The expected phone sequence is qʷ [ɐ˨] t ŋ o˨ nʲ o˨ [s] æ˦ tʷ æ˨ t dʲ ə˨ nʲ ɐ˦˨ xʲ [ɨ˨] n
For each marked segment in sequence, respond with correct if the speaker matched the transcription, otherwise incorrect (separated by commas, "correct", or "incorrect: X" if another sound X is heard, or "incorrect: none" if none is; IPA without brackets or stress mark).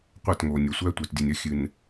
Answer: incorrect: ɐ˦˨, incorrect: sʷ, correct